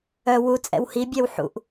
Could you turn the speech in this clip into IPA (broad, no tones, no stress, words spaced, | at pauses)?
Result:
œ wu t͡sʼɛ̰whibʲɛw ħṵʔ